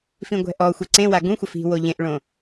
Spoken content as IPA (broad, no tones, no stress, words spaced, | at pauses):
fĩɡʷɛ̤ʔɔxʷe ǀẽwa ɡũxʷəf i̤ woʎẽʔɭõ